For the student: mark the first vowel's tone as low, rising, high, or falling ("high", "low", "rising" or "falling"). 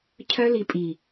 high